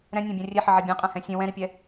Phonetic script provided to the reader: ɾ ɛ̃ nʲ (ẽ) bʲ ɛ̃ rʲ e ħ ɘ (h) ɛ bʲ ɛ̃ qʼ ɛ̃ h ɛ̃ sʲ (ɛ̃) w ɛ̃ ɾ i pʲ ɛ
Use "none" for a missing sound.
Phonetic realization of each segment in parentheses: ẽ, ʕ, ẽ

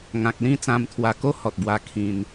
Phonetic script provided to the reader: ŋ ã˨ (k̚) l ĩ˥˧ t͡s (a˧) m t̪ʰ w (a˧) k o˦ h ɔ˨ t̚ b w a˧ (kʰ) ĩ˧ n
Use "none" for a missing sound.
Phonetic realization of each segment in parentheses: k̚, ã˧, a˧, kʰ

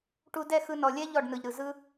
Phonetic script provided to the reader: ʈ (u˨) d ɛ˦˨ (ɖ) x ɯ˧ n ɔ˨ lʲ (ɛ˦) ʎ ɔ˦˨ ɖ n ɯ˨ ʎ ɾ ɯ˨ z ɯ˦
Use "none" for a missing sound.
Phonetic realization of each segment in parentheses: u˧, none, ɛ˦

